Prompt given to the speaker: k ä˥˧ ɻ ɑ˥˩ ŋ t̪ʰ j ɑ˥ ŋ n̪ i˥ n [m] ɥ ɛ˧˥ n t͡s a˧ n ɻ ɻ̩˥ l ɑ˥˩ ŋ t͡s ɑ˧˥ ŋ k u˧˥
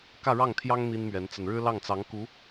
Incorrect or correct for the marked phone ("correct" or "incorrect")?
correct